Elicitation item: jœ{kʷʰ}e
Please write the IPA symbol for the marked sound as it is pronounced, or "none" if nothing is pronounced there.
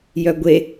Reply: ɡʷ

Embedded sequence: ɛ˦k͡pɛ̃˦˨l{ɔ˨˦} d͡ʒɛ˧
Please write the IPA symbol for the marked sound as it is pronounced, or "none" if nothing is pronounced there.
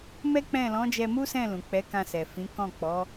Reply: ɔ̃˨˦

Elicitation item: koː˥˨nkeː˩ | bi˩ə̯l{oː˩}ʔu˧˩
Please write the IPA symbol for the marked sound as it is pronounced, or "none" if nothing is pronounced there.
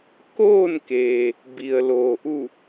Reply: oː˩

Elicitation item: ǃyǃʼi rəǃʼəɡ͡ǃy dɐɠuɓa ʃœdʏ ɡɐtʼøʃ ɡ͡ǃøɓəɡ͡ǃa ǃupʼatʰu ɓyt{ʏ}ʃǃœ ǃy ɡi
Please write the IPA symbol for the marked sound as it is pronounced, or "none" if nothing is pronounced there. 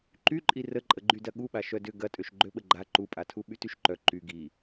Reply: y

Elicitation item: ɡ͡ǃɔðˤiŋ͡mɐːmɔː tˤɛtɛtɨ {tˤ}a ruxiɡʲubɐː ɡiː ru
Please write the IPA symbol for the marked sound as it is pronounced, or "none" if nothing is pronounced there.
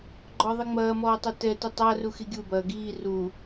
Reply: tˤ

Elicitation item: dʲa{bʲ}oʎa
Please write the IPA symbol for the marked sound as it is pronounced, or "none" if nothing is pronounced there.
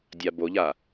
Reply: b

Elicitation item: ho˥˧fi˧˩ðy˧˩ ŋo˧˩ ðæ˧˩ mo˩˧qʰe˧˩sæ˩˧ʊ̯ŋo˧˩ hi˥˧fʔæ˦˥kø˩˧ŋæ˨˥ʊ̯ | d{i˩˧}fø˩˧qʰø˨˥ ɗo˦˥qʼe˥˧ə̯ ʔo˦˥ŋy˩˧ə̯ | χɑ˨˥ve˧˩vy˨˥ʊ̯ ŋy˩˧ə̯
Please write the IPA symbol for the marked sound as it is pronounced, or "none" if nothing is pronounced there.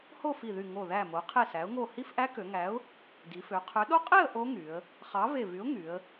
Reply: i˩˧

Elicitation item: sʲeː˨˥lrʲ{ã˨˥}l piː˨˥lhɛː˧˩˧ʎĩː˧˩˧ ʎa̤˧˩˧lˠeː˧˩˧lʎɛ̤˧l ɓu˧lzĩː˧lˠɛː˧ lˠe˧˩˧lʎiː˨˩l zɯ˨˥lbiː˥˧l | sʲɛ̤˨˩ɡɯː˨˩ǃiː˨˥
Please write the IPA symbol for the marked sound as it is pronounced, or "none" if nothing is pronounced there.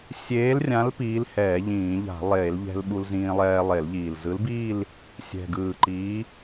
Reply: ã˨˥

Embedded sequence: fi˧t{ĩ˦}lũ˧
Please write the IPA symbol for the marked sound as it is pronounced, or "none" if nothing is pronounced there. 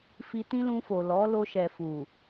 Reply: ĩ˦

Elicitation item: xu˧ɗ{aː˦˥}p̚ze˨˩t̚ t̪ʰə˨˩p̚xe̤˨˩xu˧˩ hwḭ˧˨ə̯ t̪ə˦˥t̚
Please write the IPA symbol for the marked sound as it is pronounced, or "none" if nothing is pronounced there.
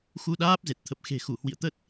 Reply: aː˦˥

